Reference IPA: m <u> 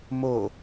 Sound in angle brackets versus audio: incorrect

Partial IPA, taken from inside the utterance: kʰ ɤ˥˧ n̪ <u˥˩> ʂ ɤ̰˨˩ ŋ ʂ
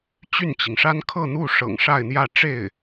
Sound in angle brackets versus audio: correct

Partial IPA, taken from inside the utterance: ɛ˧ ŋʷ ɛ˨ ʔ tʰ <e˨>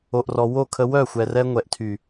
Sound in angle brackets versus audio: incorrect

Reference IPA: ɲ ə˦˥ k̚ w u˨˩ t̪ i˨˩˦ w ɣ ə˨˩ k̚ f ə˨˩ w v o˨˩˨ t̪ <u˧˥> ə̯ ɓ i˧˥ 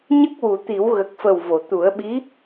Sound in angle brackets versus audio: incorrect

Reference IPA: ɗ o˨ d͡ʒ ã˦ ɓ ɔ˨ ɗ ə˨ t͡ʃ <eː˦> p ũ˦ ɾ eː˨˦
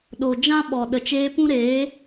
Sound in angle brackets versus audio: incorrect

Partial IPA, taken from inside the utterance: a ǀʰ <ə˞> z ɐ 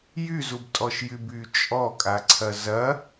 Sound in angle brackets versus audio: incorrect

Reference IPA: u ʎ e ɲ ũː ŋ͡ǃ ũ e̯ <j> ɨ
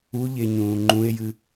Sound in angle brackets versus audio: correct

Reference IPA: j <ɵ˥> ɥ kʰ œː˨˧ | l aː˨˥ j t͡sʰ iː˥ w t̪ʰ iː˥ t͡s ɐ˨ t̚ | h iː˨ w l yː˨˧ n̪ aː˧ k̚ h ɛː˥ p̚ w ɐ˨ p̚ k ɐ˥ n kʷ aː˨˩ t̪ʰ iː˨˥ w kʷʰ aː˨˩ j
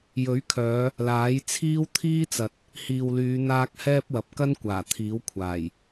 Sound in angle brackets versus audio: incorrect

